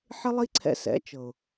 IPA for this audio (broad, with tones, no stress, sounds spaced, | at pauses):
ħ ɪ˦ lˠ i˦ ǀʰ ɛ̰˧ s ɛ̰˨˦ t͡ʃ ɤ˨ ʊ̯